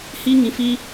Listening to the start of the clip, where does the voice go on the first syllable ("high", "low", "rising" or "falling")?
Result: high